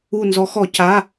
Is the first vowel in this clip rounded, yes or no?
yes